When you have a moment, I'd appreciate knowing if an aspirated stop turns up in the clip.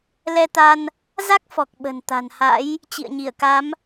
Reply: no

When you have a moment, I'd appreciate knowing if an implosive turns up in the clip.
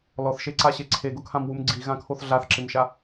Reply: no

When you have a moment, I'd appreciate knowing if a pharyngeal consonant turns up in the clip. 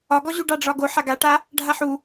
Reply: yes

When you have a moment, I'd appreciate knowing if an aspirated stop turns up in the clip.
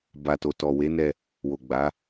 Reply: no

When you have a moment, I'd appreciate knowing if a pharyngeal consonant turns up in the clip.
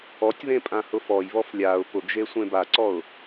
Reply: no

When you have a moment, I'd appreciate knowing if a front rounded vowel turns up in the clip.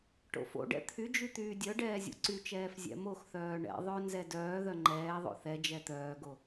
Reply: yes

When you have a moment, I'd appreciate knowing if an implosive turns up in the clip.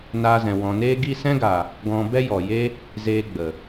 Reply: no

